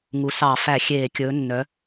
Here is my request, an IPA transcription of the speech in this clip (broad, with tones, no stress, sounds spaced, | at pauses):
ŋ u˩˧ s ɑ˧˩˧ f æ˧˩˧ xʲ eː˧˩˧ kʲ ɵː˩˧ nː œ˩˧